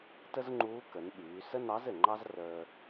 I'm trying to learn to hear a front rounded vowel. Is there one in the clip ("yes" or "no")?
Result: yes